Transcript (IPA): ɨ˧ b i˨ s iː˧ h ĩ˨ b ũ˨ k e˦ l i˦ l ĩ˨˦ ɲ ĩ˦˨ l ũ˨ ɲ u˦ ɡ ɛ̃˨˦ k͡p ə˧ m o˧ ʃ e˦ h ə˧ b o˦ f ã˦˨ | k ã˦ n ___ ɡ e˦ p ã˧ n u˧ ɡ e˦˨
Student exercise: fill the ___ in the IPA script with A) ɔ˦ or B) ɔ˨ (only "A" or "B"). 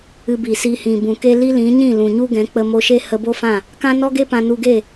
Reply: A